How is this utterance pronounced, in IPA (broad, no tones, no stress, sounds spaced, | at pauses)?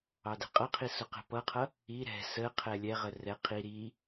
ɑ d ɛ̤ qʼ ʌ qʰ i s ʊ q ɛ̤ p ʌ qʰ ʌ | i ɾ ɛ̤ s ə qʰ ɛ lʲ ɛ ʁ ə r ɛ qʰ i ɾ i